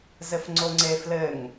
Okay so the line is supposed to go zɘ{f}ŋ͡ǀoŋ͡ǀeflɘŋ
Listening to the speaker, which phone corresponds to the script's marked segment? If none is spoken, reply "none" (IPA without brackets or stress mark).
f